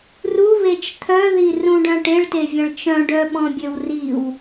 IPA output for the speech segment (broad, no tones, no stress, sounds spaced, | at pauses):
r u β e t͡ʃ t̪ʰ œ ð i r ũ ɖ œ̃ ʈ e ɭ t e vʲ ɐ̃ ɭ t͡ʃ œ̃ ɖ œ ɓ ɔ̃ bʲ ø w r i w